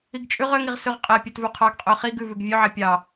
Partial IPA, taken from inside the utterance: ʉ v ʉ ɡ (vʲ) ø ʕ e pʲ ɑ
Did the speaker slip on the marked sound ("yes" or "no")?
no